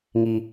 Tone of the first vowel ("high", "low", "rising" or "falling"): high